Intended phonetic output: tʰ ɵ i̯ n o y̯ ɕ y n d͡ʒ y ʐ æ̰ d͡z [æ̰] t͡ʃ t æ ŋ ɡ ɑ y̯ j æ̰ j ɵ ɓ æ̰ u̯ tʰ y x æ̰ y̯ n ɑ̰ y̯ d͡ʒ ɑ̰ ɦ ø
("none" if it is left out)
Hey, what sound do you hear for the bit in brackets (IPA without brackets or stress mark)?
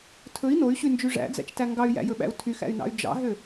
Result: æ̰